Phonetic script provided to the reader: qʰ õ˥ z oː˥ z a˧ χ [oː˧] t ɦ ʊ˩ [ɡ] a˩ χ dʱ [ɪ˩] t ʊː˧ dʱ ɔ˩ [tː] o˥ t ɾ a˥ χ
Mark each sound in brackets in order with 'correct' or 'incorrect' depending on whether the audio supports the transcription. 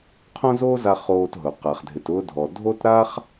correct, incorrect: q, correct, incorrect: dʱ

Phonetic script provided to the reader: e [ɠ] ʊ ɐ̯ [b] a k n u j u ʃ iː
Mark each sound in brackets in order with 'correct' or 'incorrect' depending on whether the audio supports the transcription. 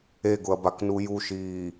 incorrect: ɡ, correct

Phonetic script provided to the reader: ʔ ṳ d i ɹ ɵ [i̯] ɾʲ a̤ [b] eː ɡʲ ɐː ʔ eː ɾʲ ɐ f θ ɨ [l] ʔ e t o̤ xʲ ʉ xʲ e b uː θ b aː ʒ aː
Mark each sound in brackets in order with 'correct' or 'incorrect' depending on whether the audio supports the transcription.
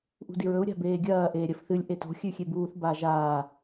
incorrect: u̯, correct, incorrect: lʲ

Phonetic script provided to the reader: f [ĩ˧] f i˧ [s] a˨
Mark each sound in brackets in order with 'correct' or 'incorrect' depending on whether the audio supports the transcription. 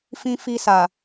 correct, correct

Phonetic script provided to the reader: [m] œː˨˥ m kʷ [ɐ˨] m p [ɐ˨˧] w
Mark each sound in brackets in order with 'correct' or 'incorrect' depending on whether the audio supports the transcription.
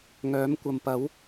incorrect: ŋ, correct, incorrect: ɐ˨˥

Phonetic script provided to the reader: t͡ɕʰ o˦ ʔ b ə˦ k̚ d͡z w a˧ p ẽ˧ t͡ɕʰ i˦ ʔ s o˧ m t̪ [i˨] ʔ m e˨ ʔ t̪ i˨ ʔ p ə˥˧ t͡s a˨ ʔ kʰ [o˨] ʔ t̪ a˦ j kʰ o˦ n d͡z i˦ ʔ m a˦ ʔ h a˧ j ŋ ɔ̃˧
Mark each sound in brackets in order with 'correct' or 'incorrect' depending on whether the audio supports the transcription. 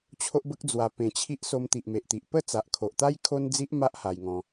correct, correct

